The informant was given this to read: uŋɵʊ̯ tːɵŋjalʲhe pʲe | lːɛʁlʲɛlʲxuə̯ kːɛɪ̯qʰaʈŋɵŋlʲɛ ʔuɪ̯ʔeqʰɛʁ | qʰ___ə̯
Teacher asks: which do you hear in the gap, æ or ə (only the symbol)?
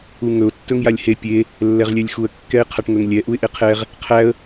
æ